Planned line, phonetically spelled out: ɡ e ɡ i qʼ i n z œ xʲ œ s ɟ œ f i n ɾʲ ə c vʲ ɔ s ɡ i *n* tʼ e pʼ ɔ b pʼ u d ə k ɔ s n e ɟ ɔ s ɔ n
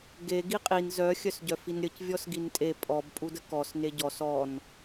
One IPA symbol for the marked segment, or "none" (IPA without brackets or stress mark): n